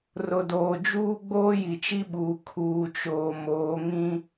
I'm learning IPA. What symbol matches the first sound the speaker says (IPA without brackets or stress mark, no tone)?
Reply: r